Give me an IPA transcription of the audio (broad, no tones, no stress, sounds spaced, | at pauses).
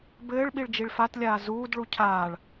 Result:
b ɘː ɭ ɓ i ɭ d͡ʒ i ɭ f a t lʲ aː z uː d ɭ u cʰ aː ɭ